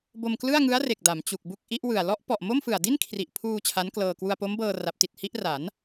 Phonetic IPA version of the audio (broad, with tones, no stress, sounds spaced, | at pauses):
b o˧ m k l ɯ˥˩ a̯ ŋ ɯ˦˥ a̯ r e˨˩ k̚ d a˩˦ m t͡ɕ u˨˩ k̚ b u˥˩ k̚ ʔ i˦˥ ʔ w ɯ˨˩ a̯ l ɔ˦˥ ʔ p ɔ˨˩ ʔ m o˥˩ m f ɯ˨˩ a̯ d i˥˩ n kʰ r i˨˩ ʔ pʰ uː˧ t͡ɕʰ a˦˥ n k l ɤː˧ k w u˧ a̯ p o˦˥ m b ɤː˧ r a˦˥ p̚ t i˨˩ t̚ h i˥˩ ʔ r a˩˦ n